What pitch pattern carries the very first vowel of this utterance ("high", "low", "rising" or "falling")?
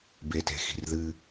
low